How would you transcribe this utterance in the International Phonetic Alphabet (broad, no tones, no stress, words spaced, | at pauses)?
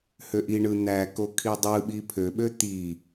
høʔiɳɯ n̪æ kokʰidˤɯɓi pʰøɓø t̪i